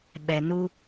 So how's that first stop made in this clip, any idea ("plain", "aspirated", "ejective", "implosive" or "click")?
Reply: implosive